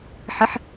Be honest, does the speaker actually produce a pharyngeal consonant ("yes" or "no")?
yes